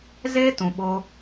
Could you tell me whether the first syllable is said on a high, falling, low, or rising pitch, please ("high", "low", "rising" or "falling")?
high